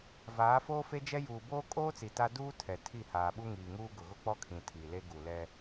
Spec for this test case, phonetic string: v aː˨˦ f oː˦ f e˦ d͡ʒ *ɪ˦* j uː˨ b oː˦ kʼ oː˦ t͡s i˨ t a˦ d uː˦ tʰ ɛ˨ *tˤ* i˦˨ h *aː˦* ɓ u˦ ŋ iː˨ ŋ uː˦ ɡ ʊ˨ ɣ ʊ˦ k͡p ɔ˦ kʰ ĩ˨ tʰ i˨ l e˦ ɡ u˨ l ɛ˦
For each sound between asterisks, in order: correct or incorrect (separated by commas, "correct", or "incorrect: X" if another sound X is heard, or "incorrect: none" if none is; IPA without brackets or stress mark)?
incorrect: ɛ˦, incorrect: tʰ, incorrect: aː˨